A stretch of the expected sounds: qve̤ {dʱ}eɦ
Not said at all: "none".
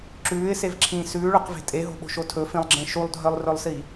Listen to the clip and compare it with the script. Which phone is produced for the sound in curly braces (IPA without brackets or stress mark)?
tʼ